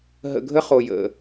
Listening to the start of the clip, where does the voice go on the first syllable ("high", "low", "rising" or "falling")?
low